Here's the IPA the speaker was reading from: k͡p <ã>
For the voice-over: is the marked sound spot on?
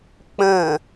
no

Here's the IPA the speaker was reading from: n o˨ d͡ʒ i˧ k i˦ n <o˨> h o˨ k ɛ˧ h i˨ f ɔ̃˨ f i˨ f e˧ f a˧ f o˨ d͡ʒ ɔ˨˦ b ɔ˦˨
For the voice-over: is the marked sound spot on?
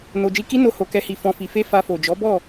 no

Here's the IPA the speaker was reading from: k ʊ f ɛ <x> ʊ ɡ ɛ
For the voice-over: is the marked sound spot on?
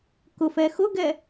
yes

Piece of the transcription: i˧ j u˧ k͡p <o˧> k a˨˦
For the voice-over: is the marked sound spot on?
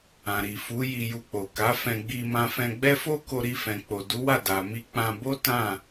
no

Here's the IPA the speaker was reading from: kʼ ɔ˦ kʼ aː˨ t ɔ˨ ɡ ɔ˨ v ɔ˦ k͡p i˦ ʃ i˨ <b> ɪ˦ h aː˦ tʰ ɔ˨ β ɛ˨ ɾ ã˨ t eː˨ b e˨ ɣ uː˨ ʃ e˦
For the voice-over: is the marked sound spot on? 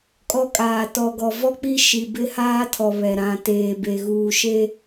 yes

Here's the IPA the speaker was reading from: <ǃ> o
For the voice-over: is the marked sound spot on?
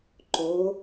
yes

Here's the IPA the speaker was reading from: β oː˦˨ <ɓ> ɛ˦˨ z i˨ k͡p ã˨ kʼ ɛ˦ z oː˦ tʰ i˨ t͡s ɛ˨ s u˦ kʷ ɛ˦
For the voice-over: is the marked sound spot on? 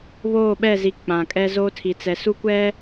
yes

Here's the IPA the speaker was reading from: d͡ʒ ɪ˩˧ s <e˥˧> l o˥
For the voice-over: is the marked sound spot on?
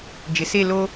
yes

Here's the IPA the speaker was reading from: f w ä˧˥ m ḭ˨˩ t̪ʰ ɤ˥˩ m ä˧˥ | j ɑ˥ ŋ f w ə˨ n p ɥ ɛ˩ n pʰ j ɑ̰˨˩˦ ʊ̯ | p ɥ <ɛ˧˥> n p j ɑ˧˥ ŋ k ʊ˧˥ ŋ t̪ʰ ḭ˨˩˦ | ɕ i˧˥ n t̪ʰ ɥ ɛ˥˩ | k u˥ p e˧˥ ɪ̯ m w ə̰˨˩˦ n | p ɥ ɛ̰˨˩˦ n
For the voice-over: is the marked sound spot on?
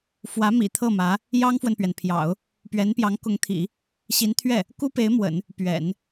yes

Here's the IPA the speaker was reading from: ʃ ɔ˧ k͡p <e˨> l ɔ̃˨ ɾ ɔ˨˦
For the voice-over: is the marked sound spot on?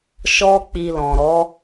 no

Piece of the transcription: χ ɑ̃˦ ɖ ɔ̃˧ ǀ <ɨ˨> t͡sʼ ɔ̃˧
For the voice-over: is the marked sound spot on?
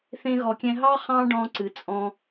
yes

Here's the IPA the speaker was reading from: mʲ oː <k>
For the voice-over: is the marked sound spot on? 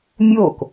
yes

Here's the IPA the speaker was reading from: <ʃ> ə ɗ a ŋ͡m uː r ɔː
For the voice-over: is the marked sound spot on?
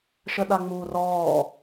yes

